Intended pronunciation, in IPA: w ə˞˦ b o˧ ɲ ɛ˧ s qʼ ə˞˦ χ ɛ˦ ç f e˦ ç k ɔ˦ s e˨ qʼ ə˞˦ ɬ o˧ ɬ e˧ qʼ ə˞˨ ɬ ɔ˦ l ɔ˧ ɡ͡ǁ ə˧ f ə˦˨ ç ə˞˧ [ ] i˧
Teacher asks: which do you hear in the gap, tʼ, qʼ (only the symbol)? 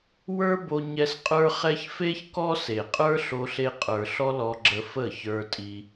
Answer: tʼ